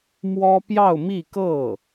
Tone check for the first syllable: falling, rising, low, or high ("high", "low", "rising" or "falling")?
high